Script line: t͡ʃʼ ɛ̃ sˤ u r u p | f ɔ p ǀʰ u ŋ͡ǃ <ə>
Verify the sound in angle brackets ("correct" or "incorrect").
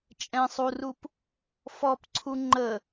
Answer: correct